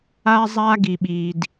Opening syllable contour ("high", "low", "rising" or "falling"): high